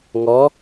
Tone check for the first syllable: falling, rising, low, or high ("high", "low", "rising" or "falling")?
rising